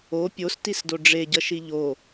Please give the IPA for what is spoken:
o pʲ o s t i s d o ɖ͡ʐ e ɟ ʌ ʃ i ʎ o

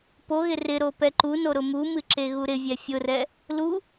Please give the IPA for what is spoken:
p o ɣ ɪ r ɪ ɾ o p ɛ ǃ u n o ɾ ʊ m u m ɨ ǁ e ɣ u ɾ ɪ vʲ ɛ fʲ ʊ r ɛ | l u

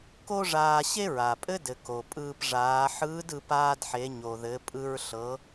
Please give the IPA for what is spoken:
k o˥ ʐ aː˧ ɕ e˥ ɹ a˩ pʼ ɘ˥ d ɘ˩ k o˩ pʼ ɯː˧ p ʐ aː˩˧ ħ ɯː˧˥ d ɯ˩˧ p aː˧ d ħ e˩˧ ɲ o˩ ð ɘ˩˧ pʼ ɯ˧ ɹ ɬ ɤ˩˧

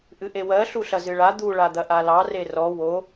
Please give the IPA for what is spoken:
ʔ ɨ ʔ e w ɜ ɬ u ɬ ɐ z ɨ ɭ a d̪ u ɭ a d̪ ɐ ʔ a l ɑ r e r ɔ w o

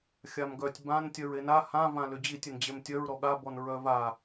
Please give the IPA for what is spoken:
xʲ a m ɡ œ tʲ b ã n tʲ œ ɹ e n a h ã v ã l ʏ d͡ʑ i tʲ ʏ n d͡ʑ e m tʲ œ ɹ ɾ ɔ ɠ a b ɔ n ɹ œ v a

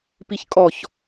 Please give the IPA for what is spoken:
p i ç kʼ ɔ ç

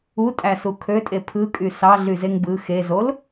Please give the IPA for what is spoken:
u tʼ æ s u kʰ ø tʼ e pʰ ɯ kʼ y s ɑ ɮ y z e ŋ b ɯ x e z o l

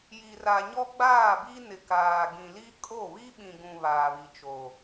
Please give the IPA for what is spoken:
j i˨ r a˨ ɲ ɔ˦ ɡ͡b aː˦˨ b i˦ n ɪ˨ k aː˨ ɡ ĩ˨ l i˦ kʼ o˦˨ β i˦ ɓ ĩ˨ ɡ ũ˨ β aː˨ β i˨ t͡ʃ o˨

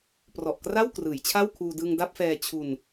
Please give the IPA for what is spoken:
p r ɔ˨˩ ʔ k r a˥˩ w k r ɯː˩˦ j t͡ɕʰ a˥˩ w kʰ uː˧ d ɯ˧ ŋ d a˥˩ p̚ f ɛː˧ t͡ɕʰ u˧ n

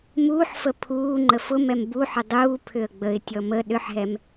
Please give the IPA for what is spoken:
m uː ħ f ə pʰ uː ŋ͡ǃ ə f ʊ m ɛ m b u ħ ʏ dˤ uː pʰ ʏ ə̯ ɡ͡b ə ɪ̯ tʲ ɔ m ə ɗ ʏ ħ ɦ ɛ m

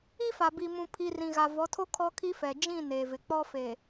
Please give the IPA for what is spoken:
i˦ f a˨ b i˨ m ũ˨ pʰ i˨ r ĩ˨ ɣ a˨ v ɔ˨˦ tʰ o˦ kʰ ɔ˦ kʰ i˦ f ɛ˨ d͡ʒ ĩ˦˨ n eː˨ v ɪ˨ k͡p ɔ˦ f eː˨

